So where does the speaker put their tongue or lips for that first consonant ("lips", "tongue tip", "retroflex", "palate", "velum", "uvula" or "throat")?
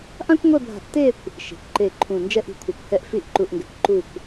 throat